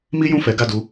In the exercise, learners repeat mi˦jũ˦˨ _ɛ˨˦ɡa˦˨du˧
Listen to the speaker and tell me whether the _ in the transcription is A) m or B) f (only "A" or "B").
B